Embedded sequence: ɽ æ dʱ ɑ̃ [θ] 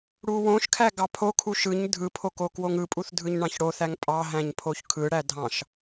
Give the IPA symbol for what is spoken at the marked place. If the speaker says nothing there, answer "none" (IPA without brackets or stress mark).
ʃ